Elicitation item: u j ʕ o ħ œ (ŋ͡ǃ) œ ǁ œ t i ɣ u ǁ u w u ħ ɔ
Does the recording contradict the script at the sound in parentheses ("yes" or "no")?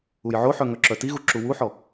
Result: yes